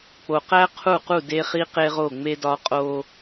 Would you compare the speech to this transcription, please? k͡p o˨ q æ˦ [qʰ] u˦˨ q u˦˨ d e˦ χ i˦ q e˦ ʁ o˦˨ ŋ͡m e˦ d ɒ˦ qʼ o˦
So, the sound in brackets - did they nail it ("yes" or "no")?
yes